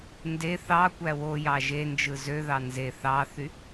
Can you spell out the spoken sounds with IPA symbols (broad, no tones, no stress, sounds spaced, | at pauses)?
n d e θ ɑ kʷ æ w o j ɑ ʒ e n d͡ʒ ɯ z ø ð ɑ n z e θ ɑ θ y